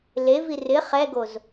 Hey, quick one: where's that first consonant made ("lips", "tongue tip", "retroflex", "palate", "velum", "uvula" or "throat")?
tongue tip